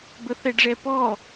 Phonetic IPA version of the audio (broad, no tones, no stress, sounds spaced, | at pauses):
b ə θ ɛ ɖ ʐ ɛ p ɔ